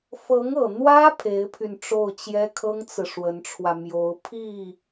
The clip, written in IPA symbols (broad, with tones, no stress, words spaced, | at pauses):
fɤ˧˥ŋɤ˨˩ n̪wä˥ pʰe˧˥ɪ̯pʰy˧n ʈ͡ʂo˥˩ʊ̯t͡ɕjɛ˥kʰɤ˥ŋt͡sɹ̩˨ ʂwə˧˥nʈ͡ʂʰwä˧ mjo˧˥ʊ̯ pʰi˥˩